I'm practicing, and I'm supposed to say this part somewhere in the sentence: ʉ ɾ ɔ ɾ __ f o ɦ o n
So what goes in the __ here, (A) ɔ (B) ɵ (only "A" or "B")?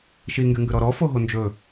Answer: A